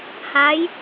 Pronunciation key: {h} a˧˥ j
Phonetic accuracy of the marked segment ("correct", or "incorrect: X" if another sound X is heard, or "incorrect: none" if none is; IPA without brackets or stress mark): correct